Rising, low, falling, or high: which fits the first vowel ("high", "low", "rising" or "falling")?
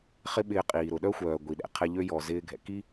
high